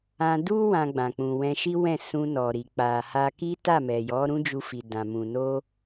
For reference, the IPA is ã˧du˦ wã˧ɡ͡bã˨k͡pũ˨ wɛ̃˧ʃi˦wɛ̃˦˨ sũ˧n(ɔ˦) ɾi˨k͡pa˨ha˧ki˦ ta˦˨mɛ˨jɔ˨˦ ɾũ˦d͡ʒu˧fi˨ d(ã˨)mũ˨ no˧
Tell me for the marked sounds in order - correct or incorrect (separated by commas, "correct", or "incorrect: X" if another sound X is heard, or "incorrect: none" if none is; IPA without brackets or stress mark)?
incorrect: ɔ˨, correct